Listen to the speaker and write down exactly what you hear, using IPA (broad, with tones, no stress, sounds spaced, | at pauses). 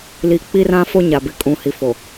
l i˨ k͡p i˦ r ã˦ f o˦ ɲ a˨ b ɪ˨ kʼ ũ˨ h i˨ f o˨